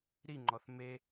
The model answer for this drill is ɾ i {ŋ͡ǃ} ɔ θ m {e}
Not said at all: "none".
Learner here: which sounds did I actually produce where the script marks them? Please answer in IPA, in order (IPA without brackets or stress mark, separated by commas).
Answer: ŋ͡ǃ, e